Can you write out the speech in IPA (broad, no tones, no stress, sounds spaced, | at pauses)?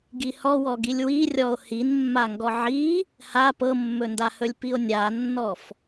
ɡ i h ɔ w ɔ ɡ i lʲ w i rʲ ɔ o̯ h i n mː a ŋ ɡ ɔ ʕ i | h a p ɤ mː ɵ n d a h ɵ lʲ p i o̯ nʲ a nː ɔ f